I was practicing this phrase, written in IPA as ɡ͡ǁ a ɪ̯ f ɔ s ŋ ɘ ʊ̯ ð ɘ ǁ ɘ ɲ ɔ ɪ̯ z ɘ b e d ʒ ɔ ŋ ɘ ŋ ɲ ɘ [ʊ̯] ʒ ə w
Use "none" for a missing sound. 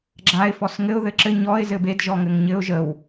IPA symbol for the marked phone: ʊ̯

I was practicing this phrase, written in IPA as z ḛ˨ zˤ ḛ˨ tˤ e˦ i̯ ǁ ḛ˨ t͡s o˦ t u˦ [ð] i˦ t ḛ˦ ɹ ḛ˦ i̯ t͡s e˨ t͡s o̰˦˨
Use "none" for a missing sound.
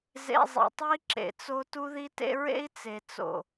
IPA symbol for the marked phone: ð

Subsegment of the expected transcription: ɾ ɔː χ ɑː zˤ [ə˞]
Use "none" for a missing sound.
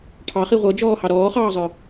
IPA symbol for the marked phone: ə˞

